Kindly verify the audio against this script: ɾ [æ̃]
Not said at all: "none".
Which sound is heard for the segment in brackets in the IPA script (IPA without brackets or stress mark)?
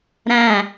æ̃